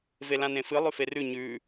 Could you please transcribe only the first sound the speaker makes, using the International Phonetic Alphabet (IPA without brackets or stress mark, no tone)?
v